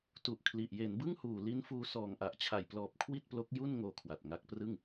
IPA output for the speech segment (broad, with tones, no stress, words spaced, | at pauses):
tu˨˩ʔkʰli˨˩ʔ je˩˦nbɯ˥˩ŋ huː˨˩li˦˥nfuː˧ sɔː˨˩ŋʔa˨˩ʔt͡ɕʰa˨˩jplɔː˨˩p̚ kʰwi˥˩t̚plo˦˥k̚ ju˥˩nŋoː˧ kʰwa˨˩t̚ŋa˦˥k̚ prɯ˥˩ŋ